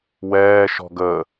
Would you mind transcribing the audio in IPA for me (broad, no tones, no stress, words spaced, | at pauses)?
wɛː ʃɔ̤ɡə